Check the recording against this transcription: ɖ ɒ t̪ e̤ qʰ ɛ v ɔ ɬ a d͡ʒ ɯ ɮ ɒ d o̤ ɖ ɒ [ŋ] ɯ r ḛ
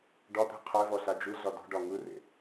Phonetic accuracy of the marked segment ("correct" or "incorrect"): correct